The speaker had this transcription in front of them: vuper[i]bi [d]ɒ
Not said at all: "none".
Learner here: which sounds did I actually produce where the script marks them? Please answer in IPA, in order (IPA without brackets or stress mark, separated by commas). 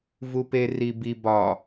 i, b